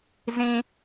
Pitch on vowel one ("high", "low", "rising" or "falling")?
low